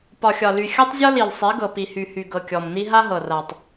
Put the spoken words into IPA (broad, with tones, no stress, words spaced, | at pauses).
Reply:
pɒ˨xʲɒ˨ly˨ xʲɤ˦tˤzʲɔ˦ li˨lsˤi˨˦ɡɤ˨ pi˨hy˨hy˨ ɡɤ˨kʲɔ˨mni˦ ɦa˦ɦɤ˨ra˨tˤ